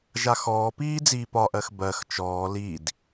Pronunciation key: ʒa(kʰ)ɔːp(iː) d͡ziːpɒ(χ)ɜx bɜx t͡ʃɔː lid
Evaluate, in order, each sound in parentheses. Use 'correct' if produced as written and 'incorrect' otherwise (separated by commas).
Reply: incorrect, correct, incorrect